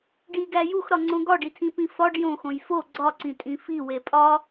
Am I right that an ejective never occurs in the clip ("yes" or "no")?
no